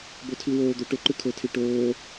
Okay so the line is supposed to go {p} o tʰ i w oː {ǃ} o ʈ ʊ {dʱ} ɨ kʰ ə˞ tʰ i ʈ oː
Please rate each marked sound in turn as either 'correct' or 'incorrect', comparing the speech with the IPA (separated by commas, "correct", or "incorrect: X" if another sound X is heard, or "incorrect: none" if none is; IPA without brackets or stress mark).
incorrect: b, incorrect: d̪, incorrect: ǃ